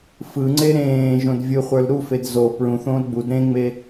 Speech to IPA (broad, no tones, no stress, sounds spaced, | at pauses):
f ɯ ŋ͡ǀ e ɾ ẽː ʒ õ d vʲ ɯ χʷ ə˞ l ɾ u f e d z o p ɹ ũ θ õː l ɡ͡b u d ɾ ẽ ŋ͡m e